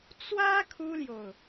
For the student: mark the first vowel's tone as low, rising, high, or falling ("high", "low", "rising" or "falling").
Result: high